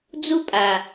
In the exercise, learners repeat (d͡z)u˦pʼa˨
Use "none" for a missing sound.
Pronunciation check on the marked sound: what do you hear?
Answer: d͡z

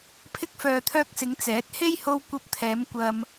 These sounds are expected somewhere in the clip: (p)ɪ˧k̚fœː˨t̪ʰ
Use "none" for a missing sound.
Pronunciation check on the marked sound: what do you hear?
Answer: pʰ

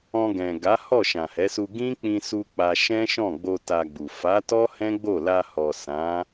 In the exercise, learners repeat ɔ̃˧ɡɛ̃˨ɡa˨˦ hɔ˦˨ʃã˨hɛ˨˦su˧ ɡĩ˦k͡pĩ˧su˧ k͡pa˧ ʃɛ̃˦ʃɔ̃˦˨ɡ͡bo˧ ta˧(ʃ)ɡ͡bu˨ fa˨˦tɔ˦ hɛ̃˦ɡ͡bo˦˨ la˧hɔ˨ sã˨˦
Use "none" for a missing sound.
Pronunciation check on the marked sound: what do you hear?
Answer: none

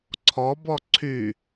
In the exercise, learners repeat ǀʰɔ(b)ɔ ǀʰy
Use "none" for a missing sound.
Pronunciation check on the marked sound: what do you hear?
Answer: b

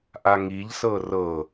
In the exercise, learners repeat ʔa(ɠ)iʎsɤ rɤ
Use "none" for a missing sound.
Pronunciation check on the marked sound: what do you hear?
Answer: ŋ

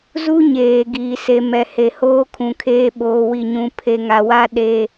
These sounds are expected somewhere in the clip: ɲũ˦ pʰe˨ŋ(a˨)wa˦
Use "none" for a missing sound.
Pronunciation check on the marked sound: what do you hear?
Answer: a˨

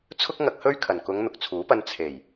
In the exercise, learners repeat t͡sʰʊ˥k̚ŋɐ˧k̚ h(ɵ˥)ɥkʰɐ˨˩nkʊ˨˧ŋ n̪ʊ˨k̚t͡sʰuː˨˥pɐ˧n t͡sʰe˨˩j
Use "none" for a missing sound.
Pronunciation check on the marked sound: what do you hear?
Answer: ɵ˥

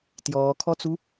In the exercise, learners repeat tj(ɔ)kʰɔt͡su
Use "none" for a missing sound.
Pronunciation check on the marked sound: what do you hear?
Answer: ɔː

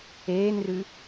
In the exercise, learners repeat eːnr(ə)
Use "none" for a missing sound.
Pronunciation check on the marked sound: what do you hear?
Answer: ʉ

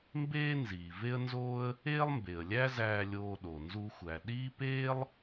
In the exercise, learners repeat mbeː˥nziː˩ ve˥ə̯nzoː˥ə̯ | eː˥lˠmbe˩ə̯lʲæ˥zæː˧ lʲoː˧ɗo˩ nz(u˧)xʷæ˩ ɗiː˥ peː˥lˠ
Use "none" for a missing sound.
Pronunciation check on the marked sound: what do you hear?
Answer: u˧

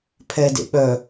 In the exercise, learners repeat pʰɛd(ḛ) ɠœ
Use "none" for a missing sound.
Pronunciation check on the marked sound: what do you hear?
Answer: ḛ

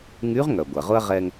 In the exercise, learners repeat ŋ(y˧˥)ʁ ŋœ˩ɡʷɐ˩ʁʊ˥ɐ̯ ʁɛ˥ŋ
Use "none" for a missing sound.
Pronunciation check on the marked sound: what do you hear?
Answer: y˧˥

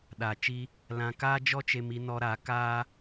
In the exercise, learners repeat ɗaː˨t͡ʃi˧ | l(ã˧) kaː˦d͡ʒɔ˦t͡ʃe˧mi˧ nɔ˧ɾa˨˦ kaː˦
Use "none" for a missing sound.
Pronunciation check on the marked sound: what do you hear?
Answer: ã˧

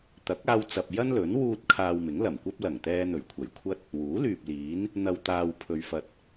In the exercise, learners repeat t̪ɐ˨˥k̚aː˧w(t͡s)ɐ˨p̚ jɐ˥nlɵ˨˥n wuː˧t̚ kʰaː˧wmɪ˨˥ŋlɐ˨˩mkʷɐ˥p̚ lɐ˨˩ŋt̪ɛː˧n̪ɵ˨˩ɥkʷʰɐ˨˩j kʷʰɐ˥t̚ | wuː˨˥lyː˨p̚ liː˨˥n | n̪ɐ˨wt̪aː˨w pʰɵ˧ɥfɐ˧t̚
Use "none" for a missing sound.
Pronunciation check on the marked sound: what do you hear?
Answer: t͡s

